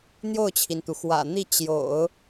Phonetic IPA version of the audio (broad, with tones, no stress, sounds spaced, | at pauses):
n̪ j o˥˩ ʊ̯ t͡ɕʰ i˩ n t̪ u˩ x w ä̰˨˩ n̪ i˥˩ t͡ɕ j o̰˨˩˦ ʊ̯